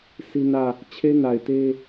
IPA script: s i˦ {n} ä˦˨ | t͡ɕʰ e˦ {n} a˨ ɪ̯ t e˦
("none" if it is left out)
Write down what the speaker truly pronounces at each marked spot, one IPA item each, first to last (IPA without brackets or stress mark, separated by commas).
n, n